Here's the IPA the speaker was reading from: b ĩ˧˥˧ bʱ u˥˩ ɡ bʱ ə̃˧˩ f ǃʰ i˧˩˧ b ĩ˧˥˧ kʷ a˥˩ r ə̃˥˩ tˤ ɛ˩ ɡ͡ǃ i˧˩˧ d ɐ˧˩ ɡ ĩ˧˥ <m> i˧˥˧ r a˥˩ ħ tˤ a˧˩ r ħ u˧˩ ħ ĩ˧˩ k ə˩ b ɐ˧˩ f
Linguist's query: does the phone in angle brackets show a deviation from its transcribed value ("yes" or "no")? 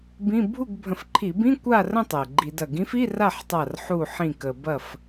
yes